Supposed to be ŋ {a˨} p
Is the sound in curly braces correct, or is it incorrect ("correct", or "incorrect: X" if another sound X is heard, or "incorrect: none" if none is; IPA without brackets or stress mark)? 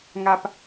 correct